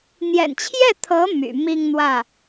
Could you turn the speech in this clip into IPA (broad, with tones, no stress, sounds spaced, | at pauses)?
n̪ j ɛ̰˨˩ n t͡ɕʰ j ɛ˥˩ t̪ʰ ɤ˧˥ m y̰˨˩ m i˥˧ ŋ n̪ w ä˥˩